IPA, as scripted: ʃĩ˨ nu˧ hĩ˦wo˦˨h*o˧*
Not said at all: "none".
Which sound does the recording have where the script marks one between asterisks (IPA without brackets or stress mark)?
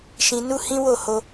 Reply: o˧